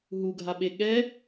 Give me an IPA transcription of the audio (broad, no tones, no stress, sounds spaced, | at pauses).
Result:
ɦ u ɡʱ a ɓ e ɠ ɛ